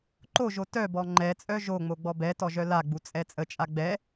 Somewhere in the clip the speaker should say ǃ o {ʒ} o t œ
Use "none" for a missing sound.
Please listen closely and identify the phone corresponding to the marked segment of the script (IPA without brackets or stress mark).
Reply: ʒ